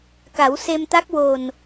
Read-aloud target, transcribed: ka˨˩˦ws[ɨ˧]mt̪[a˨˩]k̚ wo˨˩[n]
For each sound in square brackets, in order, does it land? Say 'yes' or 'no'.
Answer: no, no, yes

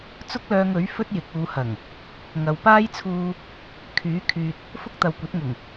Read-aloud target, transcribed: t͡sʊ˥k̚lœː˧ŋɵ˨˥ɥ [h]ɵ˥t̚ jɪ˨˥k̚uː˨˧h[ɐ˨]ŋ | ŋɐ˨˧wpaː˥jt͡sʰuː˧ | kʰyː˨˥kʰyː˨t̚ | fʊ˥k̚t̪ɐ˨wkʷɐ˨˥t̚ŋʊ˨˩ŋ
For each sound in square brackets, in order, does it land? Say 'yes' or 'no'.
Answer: no, no

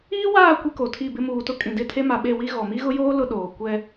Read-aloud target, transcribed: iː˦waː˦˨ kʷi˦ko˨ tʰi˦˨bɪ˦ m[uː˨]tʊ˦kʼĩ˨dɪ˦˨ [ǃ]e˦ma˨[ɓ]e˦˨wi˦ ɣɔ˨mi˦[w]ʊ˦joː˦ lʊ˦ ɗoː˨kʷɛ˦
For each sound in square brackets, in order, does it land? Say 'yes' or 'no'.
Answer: yes, no, yes, no

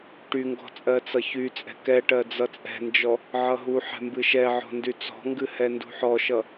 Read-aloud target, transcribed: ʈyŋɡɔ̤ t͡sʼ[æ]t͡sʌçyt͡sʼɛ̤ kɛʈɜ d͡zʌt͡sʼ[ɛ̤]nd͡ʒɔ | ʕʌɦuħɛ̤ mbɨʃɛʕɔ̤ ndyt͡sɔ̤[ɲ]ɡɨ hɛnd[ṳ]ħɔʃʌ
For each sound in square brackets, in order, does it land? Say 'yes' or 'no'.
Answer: no, yes, no, yes

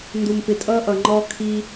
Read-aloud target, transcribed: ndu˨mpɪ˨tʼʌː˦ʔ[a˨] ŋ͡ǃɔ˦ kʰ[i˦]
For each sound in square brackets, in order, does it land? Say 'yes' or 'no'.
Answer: no, yes

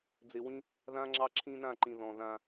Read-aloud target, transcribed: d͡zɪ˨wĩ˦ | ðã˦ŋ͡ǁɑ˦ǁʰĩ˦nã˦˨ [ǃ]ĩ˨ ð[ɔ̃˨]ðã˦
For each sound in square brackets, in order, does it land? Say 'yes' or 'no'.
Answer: yes, yes

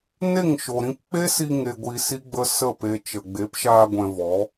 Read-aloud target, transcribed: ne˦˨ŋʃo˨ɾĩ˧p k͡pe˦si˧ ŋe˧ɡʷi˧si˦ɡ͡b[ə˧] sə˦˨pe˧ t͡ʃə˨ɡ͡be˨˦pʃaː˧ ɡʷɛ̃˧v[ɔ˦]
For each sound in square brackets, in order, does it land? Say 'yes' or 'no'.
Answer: no, no

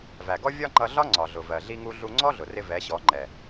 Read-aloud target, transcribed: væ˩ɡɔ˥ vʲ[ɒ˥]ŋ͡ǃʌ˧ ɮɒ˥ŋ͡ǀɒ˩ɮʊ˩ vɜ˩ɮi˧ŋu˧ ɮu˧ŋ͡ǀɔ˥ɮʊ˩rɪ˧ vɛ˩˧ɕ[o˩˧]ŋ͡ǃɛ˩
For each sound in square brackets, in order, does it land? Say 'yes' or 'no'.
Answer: yes, no

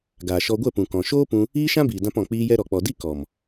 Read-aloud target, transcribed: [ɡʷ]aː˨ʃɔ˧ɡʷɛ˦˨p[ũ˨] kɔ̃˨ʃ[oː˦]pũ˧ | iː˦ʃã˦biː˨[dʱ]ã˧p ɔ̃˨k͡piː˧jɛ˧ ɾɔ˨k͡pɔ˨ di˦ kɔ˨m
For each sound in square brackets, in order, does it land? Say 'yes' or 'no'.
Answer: no, yes, yes, no

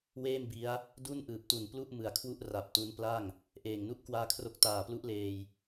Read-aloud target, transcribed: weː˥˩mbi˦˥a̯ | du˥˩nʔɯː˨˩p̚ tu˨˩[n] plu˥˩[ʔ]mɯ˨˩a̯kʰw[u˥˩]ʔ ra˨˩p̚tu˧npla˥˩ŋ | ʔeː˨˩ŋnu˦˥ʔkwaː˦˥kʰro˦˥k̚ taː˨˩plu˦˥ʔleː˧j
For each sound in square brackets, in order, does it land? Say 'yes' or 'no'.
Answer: yes, yes, yes

